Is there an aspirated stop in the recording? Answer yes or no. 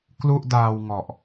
no